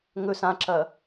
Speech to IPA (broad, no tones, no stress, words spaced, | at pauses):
ŋɵs ãǁɐ